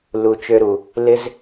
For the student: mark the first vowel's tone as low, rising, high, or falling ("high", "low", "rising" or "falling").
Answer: low